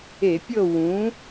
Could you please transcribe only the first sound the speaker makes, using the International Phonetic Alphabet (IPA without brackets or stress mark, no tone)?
e